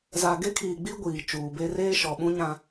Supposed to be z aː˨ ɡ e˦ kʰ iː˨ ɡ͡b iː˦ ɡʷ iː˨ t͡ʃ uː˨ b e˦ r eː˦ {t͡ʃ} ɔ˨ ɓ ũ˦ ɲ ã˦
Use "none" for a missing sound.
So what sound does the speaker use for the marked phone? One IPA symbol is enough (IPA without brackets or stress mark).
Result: ʃ